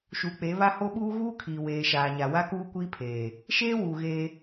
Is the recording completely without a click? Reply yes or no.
yes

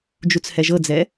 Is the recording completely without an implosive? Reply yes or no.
yes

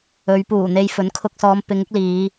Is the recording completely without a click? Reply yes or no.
yes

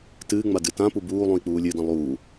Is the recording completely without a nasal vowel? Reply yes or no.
no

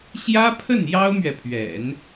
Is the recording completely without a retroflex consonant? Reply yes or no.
yes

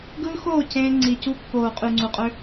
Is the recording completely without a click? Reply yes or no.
no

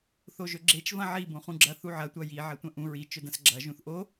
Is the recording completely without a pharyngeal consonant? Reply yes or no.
no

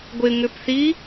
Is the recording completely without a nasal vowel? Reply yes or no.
yes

